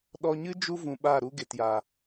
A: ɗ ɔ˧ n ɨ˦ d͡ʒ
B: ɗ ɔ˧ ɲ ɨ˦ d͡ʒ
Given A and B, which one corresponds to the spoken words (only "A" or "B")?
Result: B